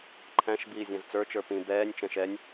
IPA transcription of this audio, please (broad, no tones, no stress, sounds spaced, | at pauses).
ǃʰ æ̃ ʃ b iː zʲ æ̃ z t͡s ə˞ t͡ʃ ə˞ p ĩ b ɛː nʲ t͡ʃ ɛ̃ ʃ ɛ nʲ